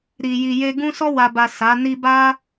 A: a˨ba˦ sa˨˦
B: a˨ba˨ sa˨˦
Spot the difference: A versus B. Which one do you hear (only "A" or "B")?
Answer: B